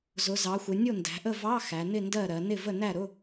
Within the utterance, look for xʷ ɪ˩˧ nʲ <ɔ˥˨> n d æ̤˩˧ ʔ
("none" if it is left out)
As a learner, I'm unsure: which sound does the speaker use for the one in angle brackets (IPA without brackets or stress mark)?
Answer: ʊ˥˨